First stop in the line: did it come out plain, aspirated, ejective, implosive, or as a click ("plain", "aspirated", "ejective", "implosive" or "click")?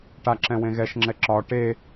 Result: plain